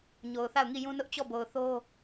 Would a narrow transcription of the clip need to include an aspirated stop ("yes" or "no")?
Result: no